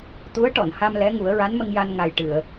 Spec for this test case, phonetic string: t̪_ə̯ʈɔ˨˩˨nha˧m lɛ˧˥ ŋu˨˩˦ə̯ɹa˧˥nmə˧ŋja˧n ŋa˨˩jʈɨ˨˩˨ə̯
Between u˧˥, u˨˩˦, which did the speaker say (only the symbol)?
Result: u˧˥